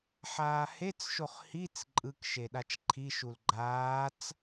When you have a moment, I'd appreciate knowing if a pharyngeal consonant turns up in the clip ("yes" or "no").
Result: yes